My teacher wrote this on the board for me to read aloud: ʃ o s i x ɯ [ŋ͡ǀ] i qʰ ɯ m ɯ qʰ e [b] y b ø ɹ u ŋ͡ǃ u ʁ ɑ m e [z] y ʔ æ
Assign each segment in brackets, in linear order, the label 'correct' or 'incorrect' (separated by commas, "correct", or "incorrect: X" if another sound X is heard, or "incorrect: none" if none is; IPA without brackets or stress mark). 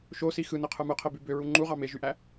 incorrect: n, correct, incorrect: ʒ